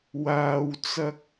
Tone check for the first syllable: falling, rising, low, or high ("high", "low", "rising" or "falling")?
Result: low